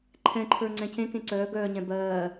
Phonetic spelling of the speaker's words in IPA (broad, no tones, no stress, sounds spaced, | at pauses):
ǃʰ ɛ̃ ǃʰ ə˞ ŋ͡ǀ ɛ̃ c ẽ k ẽ ǀ œː ɡ œː ɲ ɛ̃ b ɜː